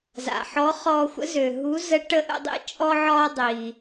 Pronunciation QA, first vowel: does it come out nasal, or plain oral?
oral